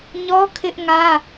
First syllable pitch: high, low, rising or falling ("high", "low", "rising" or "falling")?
high